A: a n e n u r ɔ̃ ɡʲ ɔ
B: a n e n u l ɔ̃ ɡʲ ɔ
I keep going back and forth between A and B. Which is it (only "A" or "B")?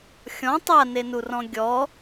A